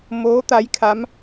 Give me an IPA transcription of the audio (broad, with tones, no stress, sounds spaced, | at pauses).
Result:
m oː˧˥ t̪ a˧˥ j kʰ a˧˥ m